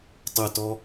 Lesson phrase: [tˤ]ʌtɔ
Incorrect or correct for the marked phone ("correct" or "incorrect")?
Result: correct